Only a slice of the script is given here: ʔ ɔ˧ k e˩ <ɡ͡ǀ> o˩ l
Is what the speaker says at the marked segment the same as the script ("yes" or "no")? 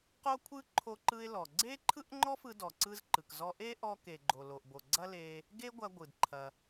no